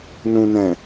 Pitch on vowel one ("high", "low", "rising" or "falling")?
low